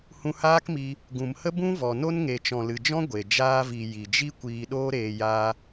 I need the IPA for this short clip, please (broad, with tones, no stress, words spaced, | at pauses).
hũ˧haː˦kmi˧ | ɡũ˨mhə˦bũ˦ vɔ˨no˦n ŋe˨t͡ʃɔ̃˨lɨ˨d͡ʒɔ̃˦ ɡʷe˨ d͡ʒaː˧vi˨ ji˨d͡ʒi˦ kʷiː˧ɗoː˦ɾeː˧ ja˦